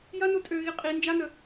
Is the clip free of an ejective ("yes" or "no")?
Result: no